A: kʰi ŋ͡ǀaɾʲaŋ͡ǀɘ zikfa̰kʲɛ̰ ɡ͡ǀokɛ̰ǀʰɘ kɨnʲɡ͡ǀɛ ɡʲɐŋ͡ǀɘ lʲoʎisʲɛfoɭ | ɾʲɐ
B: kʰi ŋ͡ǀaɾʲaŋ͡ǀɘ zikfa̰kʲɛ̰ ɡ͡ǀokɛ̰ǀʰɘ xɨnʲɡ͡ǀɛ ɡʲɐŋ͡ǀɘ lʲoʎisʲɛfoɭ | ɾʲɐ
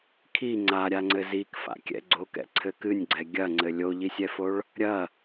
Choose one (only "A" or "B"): A